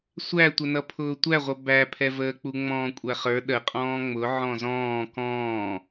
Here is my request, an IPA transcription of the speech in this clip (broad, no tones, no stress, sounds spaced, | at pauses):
sʷ æ tʷ ə n ʌ pʰ ʊː tʷ æ ʁʷ ʌ b æ pʰ ɛ v əː k͡p u ŋ͡m ɔ̃ː kʷʼ æ χ ə˞ ɗ ə qʼ ɔ̃ː ŋ͡m ʊ ʕ ɔ̃ z ɔ̃ː k ɔ̃ː